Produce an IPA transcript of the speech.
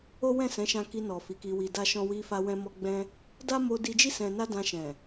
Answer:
o˦ wɛ̃˦˨sɛ̃˨˦ʃã˧ ki˧nɔ˨ fi˨˦ki˧wi˧ da˦ʃɔ̃˦ wi˧fa˧wɛ̃˧mɔ˧ ɡ͡bɛ̃˦ | da˦mo˧di˧d͡ʒi˦ sɛ̃˧ na˦dã˧ʃɛ̃˨

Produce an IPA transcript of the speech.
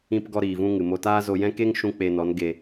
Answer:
ĩ˧pɡɔ˧ɾiː˨vũ˧ ŋɨ˨mo˧taː˦ zo˧ jɛ̃˦ke˦ŋ ʃũ˦k͡pe˧nɔ˨˦n ɡe˧

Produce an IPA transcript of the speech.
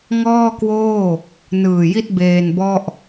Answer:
ŋɔː˥˩kwoː˥˩ | nɯː˨˩ji˥˩t̚beː˧n bɔ˥˩ʔ

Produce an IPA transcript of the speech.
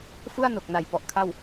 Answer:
fɯ˥˩a̯no˨˩k̚na˨˩jpɔ˨˩ʔ kʰa˥˩w

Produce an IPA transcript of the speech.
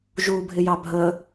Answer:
ʒuːbʱɪjɑbʱə

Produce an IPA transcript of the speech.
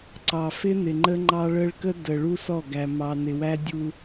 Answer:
ǀɑ˨fɪ˦ nɪ˨ŋ͡ǃə˦ŋ͡ǃɑ˦ɭə˦ɭ kə˦də˨ ɭu˦sɔ˦˨ɡæ˨ mɑ˨ nɪ˨wæ˦ dʲu˦

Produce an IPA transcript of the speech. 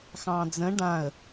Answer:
xɑ̃ːd͡zə̃ ɖãə̯

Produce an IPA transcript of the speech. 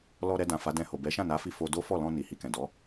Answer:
lɔ˧ɾɛ˧dã˨ fa˨˦dɛ̃˧ho˨ bɛ˨˦ʃã˦˨na˨˦fi˧ fo˧do˦ fɔ˦˨lɔ̃˧ ni˨hi˨kɛ̃˨dɔ˨˦

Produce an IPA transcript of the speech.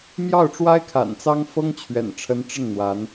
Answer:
mjɑ˥˩ʊ̯ʈ͡ʂwa˥ɪ̯kʰa̰˨˩nt͡sɑ˥ŋ fɤ˥ŋt͡ɕʰɥɛ̰˨˩nʈ͡ʂʰə˧˥nʈ͡ʂə˥˩n n̪wa˧˥n

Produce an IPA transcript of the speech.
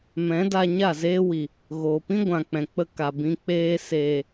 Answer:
mɛ̃˨˦da˧ɲa˦˨ zeː˦wi˨ | ɣoː˨pĩ˦ ɡʷã˨k͡pɛ̃˨k͡pə˧ ka˨ bĩ˧ k͡peː˧ seː˨

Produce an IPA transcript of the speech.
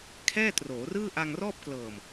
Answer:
kʰɛː˥˩troː˩˦rɯː˥˩ ʔa˧ŋrɔː˥˩p̚klɤː˨˩m

